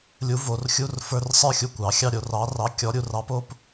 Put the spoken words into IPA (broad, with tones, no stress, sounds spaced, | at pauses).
lʲ u˨˥ v o˩˧ r xʲ u˧˥˧ r f ə˞˧˥˧ r sˤ ə˞˥˧ xʲ u˧ kʷ ɑ˩˧ xʲ ɑ˥˧ ɾʲ o˩˧ r ɑ˨˥ r ɑ˨˥ kʲ ɔ˨˥ ɾʲ u˧ r ɑ˦˥ p o˨˥ p